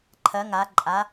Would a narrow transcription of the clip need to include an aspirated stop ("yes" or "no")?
yes